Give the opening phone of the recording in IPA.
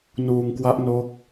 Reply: n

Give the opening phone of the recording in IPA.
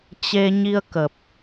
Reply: t͡ɕ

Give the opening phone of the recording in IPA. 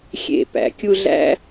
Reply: xʲ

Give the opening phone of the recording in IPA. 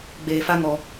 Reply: ɡ͡b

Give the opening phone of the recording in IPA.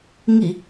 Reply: ŋ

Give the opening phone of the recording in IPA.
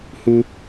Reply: h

